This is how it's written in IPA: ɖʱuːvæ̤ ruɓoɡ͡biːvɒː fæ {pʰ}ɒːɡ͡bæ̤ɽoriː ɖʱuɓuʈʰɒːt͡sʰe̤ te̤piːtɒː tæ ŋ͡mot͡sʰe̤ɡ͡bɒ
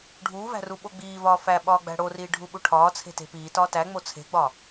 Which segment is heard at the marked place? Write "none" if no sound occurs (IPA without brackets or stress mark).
ɓ